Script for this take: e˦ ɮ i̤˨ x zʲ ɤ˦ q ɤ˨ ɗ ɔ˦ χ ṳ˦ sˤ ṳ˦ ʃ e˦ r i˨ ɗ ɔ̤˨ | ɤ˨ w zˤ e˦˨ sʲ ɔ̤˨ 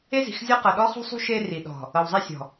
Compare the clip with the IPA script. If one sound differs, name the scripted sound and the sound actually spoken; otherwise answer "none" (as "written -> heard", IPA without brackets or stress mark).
ɮ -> z